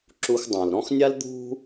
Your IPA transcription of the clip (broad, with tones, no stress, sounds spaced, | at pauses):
ǁ u˧ x dˤ ã˩ l ɾ ɔ̃˥ x nʲ a˥ l d̪ ṳ˧